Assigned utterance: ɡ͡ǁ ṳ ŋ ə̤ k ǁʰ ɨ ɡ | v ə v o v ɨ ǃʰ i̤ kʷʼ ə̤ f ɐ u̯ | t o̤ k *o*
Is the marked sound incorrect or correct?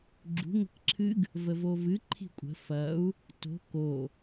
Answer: correct